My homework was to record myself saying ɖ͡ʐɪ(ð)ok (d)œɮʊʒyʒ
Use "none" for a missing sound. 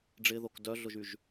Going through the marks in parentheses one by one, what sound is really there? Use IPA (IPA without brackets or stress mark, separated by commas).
ð, d